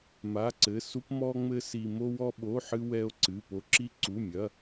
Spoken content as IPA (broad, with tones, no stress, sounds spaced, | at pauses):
m a˧˥˧ ǀ ɘ˧˥˧ s u˥ p m ɔ˥ ŋ͡m ɘ˥ s i˥ m o˥ w ɔ˥ ɓ o˧˥˧ ħ ɨ˥ w ɛ˥ o̯ ǀ ɨ˧˥˧ p o˥ ǁ i˥ ǀ u˧˥˧ mʲ ɐ˧˥˧